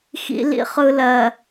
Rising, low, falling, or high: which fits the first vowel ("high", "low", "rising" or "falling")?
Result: low